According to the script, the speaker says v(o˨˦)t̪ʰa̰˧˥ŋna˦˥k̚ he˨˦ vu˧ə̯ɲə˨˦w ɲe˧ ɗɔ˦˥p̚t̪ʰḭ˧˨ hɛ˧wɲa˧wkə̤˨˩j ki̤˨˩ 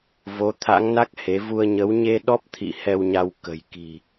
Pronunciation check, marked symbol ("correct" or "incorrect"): correct